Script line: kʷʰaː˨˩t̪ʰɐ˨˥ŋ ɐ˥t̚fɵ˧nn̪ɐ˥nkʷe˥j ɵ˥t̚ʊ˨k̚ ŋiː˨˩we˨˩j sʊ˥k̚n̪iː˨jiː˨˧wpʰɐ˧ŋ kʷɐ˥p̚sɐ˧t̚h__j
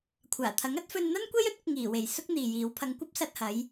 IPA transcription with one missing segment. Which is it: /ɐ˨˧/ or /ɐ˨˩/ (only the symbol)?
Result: ɐ˨˧